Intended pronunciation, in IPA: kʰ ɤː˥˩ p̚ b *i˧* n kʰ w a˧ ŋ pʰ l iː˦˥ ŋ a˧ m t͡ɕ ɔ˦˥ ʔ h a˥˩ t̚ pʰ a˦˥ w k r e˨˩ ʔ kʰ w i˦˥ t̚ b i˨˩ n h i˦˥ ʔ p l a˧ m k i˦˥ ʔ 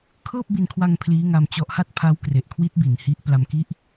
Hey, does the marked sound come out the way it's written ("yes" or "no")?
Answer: yes